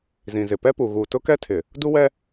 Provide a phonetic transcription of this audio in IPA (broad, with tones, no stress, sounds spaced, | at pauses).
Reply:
z ĩ˨ z ɪ˨ p ɛ˦ p u˨ ɣ uː˨ t ʊ˦ k ɛ˦ tʰ ɪ˨ | d u˦ w ɛ˦